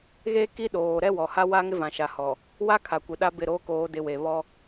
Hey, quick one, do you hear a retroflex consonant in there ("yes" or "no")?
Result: no